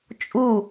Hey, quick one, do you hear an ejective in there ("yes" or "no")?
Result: yes